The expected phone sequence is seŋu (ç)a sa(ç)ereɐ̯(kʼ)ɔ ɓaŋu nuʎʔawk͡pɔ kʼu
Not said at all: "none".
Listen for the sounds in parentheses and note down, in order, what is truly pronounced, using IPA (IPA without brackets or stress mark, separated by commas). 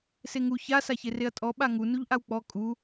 ç, ç, tʼ